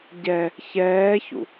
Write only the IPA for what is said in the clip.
ɟɛ | çɛːçṵ

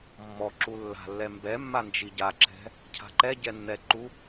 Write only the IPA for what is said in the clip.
mːɔ ǁulːa̤lːɛ mbɛmːa nd͡ʒiɟaǁɛ̤ | cʰa̤ǃɛɟɛ nːɛǃu

